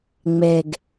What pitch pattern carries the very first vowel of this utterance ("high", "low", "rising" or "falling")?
low